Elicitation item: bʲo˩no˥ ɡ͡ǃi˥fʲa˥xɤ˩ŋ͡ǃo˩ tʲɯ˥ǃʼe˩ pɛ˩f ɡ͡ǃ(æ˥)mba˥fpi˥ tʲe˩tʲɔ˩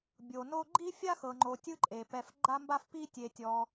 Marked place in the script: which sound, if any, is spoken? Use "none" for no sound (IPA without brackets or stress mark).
a˥